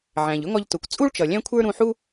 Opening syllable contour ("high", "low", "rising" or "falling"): low